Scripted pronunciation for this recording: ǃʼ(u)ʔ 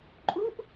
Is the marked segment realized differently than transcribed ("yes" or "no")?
no